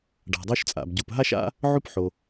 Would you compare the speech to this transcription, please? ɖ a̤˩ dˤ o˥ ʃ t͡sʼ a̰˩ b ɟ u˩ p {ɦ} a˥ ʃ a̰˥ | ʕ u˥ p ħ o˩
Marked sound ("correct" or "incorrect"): correct